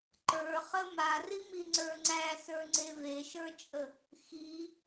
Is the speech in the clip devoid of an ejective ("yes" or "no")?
no